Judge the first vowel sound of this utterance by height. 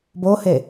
mid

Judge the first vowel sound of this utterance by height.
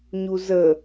high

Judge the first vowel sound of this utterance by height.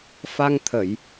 low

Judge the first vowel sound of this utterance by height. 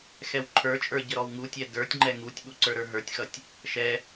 mid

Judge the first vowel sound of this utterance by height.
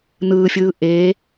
high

